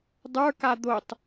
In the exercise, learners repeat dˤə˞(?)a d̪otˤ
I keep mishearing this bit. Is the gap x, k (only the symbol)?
k